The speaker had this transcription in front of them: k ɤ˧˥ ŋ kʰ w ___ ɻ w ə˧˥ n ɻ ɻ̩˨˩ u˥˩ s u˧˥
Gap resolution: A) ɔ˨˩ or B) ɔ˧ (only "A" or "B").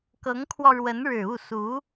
B